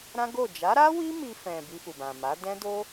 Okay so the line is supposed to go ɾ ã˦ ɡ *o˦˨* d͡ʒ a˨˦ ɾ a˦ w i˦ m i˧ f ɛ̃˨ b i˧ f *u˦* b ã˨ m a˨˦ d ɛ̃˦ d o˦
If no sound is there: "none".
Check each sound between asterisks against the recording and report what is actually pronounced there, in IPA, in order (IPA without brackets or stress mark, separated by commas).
o˦˨, u˨